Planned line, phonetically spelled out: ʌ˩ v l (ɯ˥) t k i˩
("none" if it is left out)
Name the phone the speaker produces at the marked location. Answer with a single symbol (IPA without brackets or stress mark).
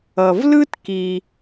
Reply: ɯ˥